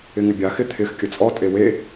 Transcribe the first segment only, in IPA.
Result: ɪ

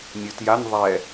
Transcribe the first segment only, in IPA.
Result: nʲ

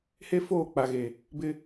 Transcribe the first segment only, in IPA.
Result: h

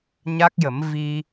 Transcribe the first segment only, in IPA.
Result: ɲ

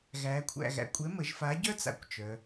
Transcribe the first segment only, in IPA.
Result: ɣ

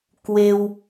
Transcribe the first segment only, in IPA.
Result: k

